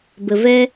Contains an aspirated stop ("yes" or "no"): no